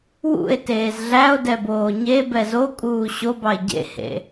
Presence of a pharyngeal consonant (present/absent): absent